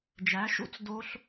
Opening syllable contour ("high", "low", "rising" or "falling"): rising